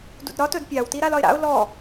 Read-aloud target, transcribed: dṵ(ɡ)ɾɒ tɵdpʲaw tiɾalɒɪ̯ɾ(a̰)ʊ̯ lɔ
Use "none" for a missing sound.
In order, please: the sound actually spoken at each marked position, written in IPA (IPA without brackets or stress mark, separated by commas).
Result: d, a̰